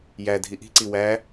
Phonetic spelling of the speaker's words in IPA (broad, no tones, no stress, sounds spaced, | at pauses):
j æ dʱ i ʔ i̤ ǀ i w æ